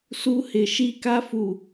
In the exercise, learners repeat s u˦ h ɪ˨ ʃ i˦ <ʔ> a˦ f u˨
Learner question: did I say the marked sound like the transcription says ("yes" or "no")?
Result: no